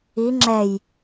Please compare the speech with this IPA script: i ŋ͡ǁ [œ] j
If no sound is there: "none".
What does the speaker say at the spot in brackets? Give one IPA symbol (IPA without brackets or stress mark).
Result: ɛ